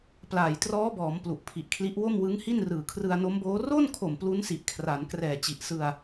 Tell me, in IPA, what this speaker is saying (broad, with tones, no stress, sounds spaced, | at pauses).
p l aː˨˩ j t r ɔː˦˥ b ɔː˩˦ m p l u˨˩ ʔ pʰ i˨˩ ʔ kʰ l i˦˥ ʔ w o˥˩ m w ɯ˦˥ ŋ h i˥˩ n r ɯː˨˩ kʰ r ɯ˧ a̯ n o˦˥ m b oː˦˥ r o˥˩ n kʰ o˨˩ m p l u˦˥ n s i˨˩ ʔ kʰ r a˩˦ n k r ɛː˨˩ t͡ɕ i˨˩ ʔ s ɯ˧ a̯